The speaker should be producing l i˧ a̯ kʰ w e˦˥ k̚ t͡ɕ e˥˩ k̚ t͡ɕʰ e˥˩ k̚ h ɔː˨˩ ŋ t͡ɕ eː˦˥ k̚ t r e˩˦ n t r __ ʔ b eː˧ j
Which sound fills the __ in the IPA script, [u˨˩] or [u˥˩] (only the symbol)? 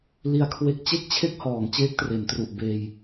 u˨˩